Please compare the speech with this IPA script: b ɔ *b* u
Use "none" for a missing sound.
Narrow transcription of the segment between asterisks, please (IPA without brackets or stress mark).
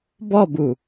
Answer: b